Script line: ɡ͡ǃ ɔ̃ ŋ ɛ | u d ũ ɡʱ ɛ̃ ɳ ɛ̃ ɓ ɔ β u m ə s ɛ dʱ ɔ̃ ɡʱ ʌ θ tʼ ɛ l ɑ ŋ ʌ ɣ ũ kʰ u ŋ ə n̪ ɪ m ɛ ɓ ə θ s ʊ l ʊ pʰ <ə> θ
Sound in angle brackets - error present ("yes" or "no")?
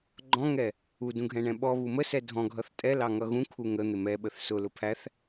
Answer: yes